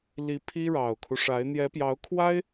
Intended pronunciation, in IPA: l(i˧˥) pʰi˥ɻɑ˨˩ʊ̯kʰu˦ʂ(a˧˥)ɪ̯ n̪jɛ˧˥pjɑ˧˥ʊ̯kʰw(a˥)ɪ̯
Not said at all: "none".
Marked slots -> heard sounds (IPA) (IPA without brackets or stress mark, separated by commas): i˧˥, a˧˥, a˥